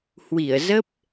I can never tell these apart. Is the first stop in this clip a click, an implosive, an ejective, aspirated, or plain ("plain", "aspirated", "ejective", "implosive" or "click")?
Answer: plain